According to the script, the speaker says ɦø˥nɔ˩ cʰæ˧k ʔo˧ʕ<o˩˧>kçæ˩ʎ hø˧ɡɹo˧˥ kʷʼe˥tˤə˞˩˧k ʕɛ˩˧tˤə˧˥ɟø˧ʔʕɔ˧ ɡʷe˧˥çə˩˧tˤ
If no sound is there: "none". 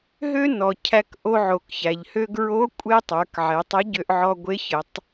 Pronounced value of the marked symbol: o˩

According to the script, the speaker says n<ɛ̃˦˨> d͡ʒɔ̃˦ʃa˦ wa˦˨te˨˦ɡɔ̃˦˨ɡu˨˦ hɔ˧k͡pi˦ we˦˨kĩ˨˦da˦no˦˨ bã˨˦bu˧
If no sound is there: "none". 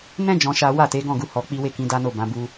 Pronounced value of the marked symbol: ɛ̃˦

